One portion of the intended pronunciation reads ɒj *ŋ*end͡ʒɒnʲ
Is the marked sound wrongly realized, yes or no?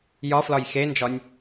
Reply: yes